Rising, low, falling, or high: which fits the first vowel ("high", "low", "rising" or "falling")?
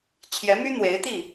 rising